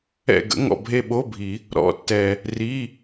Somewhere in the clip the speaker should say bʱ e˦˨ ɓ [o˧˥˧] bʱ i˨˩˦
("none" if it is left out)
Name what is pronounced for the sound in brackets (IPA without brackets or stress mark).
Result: o˧˥˧